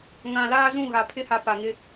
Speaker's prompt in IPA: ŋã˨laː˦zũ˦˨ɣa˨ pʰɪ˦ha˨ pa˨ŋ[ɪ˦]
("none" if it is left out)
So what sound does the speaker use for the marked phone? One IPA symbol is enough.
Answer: ɪ˦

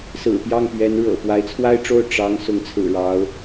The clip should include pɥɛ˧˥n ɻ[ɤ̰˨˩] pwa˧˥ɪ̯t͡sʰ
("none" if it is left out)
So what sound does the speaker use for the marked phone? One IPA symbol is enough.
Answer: ɤ̰˨˩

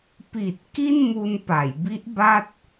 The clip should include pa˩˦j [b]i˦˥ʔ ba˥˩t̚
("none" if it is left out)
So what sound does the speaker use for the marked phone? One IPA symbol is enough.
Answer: b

